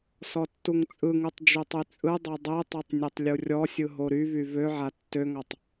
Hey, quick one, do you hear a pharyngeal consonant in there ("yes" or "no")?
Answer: yes